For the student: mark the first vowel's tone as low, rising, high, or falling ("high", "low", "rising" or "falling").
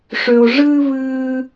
low